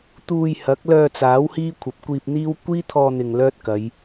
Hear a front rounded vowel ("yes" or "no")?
yes